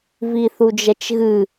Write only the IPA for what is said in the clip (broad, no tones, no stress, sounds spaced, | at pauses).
v i θ u d͡ʒ ɛ t͡ʃ ɣ ɨ